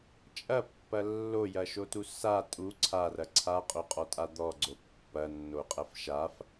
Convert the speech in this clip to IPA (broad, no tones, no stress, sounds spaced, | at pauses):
t͡ʃʼ ɐ pː ɐ lː o j ɐ ʃ o t u s a tʼ u ǀʰ a r ɐ ǀʰ a qʼ o qʼ ɔ tʼ a d̪ ɔ ɡ͡ǀ o pː ɐ nː o qʼ ɐ f ʃ a f